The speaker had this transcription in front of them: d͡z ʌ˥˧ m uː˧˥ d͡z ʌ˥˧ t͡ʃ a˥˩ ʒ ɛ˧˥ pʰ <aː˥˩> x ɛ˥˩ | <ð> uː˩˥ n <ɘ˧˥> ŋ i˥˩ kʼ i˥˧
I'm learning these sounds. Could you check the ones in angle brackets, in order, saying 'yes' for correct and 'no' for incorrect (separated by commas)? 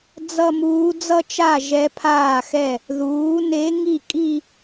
yes, yes, no